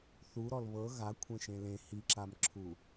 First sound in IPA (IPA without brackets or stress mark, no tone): θ